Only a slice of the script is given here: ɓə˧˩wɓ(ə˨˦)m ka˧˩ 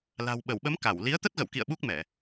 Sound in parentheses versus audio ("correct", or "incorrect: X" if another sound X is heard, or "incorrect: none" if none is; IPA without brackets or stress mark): correct